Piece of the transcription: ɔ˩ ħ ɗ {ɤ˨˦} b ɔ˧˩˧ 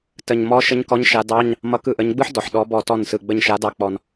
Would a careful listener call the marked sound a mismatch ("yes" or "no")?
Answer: yes